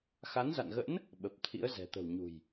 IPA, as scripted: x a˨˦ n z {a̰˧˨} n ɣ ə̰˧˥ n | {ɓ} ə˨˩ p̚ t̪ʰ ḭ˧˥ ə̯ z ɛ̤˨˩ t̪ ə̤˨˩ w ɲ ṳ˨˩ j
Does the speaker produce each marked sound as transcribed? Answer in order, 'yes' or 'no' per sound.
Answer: yes, yes

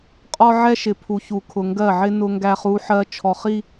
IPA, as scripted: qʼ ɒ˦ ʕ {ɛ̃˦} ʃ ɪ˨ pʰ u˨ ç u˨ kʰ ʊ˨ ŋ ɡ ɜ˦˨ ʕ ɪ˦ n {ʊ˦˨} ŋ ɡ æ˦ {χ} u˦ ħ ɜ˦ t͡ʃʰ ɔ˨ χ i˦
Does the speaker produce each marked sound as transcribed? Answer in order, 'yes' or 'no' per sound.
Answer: no, no, yes

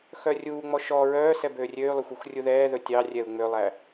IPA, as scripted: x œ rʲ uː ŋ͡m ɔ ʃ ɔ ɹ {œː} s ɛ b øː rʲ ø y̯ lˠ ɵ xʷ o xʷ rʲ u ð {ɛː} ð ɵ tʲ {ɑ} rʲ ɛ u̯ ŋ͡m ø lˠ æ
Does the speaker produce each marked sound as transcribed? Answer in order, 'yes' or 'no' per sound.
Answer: yes, yes, yes

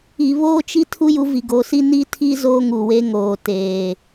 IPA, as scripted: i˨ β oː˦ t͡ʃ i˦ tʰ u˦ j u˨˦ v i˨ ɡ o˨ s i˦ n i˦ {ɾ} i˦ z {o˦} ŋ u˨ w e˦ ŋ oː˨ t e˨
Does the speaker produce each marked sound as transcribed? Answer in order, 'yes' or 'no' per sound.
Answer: no, yes

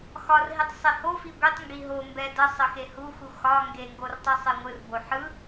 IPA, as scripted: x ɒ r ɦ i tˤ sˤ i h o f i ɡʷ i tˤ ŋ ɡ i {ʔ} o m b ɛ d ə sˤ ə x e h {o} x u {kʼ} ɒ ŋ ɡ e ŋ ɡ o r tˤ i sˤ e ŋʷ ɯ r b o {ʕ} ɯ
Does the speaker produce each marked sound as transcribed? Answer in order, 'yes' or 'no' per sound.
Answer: no, no, no, no

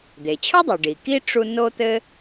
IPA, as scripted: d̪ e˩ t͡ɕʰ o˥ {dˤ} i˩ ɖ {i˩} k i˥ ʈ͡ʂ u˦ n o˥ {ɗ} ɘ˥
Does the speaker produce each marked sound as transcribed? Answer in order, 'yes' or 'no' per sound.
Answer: yes, yes, no

